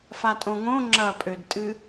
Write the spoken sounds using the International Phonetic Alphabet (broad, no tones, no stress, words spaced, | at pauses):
fatʼõŋõ ŋ͡ǁɐpʼødtʼɨ